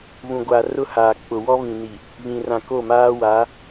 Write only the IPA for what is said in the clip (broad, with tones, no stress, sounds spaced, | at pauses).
β ũ˨ ɡʷ a˨ r ʊ˦ h aː˨ k͡p ʊ˨ w ɔ˦ β ĩ˨ n i˨ | β ĩ˨ r ã˨ k o˦˨ m aː˦ w a˨˦